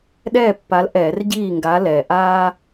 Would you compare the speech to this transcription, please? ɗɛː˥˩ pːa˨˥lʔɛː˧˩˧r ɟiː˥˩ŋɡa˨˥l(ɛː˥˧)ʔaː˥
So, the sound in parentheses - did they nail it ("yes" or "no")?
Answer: no